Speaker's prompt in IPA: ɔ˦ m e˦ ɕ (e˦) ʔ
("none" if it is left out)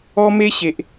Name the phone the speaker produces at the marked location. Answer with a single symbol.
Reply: e˨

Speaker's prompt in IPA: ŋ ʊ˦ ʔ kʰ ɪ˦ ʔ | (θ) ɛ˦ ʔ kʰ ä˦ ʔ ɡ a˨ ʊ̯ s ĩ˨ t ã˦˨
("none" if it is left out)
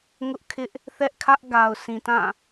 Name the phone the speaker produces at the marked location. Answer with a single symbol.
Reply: θ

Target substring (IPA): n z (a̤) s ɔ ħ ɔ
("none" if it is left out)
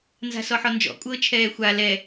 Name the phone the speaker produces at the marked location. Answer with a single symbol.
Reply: a̤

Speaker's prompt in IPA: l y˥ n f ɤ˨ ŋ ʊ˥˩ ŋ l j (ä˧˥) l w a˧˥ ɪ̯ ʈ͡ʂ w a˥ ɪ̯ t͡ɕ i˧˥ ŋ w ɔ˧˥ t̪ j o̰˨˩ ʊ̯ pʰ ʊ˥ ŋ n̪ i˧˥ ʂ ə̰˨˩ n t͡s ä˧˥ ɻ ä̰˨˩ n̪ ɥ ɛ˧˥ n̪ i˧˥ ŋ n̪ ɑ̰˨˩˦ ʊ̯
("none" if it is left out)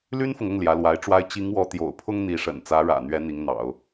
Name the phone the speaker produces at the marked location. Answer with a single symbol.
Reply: ä˧˥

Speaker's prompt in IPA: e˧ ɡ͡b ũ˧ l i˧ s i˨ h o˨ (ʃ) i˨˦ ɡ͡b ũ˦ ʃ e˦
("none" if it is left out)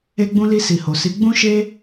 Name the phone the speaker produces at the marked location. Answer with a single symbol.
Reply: s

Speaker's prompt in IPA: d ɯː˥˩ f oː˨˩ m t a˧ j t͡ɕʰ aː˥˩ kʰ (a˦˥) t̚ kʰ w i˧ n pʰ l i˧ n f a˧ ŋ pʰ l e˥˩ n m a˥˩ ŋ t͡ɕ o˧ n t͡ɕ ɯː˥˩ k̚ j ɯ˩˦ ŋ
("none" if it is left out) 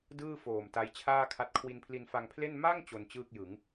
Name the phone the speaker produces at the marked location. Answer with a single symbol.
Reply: a˦˥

